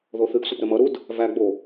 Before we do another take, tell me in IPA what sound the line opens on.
ð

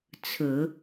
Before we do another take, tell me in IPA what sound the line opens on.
t͡sʰ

